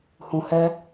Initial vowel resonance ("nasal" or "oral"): nasal